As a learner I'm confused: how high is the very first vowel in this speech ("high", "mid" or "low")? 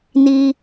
high